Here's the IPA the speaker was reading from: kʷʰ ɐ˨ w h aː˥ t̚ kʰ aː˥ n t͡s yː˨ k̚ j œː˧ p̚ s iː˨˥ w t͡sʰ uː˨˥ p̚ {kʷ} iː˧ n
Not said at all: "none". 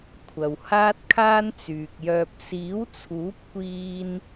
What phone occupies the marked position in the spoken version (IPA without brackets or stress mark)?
kʷ